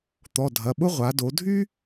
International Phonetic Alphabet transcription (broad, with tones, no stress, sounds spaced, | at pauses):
t̪ ɔ˩˧˩ dʱ ɐ˩˧˩ ɓ ʊ˥ ʁʷ a˩˧ d o˩˧ dʱ y˥